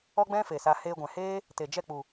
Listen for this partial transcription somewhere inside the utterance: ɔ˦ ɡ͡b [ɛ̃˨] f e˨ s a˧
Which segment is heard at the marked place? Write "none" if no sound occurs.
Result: ɛ̃˦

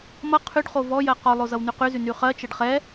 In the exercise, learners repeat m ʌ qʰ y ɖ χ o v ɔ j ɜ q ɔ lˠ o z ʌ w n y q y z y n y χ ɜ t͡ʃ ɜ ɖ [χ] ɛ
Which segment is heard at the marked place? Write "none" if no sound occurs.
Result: χ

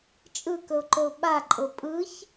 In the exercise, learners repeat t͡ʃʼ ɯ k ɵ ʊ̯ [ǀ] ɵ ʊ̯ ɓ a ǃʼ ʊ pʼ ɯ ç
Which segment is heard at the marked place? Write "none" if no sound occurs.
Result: ǃ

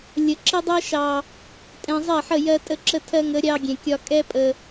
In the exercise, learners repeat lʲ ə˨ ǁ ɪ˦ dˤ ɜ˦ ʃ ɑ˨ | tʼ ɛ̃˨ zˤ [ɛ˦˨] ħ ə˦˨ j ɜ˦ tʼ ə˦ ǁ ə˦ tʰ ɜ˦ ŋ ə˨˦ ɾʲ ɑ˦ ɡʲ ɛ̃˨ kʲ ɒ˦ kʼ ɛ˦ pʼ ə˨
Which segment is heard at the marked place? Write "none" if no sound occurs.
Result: ɛ˦˨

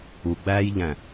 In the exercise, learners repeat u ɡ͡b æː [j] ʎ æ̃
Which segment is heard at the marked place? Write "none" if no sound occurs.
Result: j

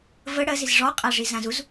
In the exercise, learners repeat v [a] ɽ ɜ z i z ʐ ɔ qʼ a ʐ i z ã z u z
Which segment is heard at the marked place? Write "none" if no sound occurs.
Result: ə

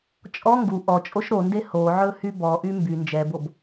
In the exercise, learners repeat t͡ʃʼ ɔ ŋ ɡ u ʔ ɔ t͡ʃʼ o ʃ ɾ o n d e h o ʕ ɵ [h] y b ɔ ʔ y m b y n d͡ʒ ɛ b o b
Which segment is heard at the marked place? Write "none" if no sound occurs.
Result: h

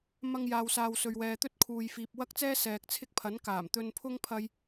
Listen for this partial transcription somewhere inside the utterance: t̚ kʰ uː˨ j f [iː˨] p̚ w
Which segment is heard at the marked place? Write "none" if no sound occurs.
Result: iː˨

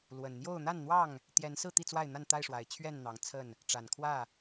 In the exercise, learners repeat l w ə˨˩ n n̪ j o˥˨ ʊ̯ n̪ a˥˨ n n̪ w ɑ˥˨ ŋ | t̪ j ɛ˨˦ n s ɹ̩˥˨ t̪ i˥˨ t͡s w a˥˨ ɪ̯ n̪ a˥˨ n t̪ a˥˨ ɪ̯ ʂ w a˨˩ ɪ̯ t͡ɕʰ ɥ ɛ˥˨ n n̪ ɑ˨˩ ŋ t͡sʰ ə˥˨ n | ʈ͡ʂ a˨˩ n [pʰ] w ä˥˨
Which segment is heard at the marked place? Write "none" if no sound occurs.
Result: kʰ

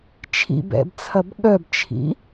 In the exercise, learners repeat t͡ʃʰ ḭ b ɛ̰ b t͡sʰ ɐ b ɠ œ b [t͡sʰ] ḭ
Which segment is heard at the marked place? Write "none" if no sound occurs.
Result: t͡ʃʰ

